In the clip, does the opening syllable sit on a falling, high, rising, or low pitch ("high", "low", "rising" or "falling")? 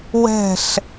falling